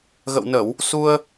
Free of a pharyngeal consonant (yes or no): yes